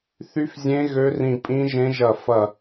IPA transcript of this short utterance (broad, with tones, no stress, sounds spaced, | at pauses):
θ y˦˥ f zʲ ẽ˦˥ ɣ ø˦˥ r ĩ˦˨ pʼ ĩ˦˥ ʒ ẽ˦˥ ʒ ɐ˦˨ f ɐ˦˨